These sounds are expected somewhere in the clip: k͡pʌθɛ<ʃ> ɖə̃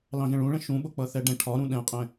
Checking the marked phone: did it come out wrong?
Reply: yes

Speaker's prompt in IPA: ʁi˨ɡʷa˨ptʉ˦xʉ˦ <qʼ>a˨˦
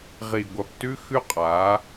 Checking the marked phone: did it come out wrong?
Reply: no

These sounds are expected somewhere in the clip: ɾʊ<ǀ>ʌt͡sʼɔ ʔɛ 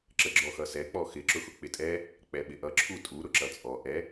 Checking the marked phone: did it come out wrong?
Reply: yes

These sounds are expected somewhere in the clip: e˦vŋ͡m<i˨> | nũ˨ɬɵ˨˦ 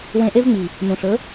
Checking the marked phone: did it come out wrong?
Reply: no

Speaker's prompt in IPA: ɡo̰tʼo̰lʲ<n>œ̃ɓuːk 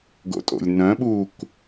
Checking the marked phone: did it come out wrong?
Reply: no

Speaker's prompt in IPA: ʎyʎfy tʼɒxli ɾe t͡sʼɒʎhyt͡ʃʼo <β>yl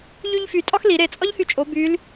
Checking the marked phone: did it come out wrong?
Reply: yes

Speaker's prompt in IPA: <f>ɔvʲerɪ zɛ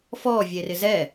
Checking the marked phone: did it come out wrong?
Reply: no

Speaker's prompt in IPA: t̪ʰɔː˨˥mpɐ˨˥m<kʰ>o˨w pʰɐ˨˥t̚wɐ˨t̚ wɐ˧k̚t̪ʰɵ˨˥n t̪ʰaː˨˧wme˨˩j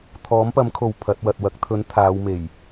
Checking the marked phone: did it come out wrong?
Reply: no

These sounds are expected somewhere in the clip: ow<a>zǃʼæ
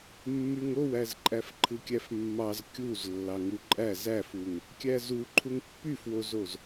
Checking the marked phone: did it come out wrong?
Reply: yes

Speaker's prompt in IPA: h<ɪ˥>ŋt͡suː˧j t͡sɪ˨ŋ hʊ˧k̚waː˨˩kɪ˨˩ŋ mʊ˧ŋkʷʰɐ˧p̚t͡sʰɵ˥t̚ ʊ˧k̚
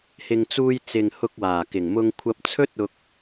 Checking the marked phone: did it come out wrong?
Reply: yes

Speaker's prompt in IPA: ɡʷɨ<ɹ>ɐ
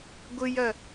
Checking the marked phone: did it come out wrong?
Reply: yes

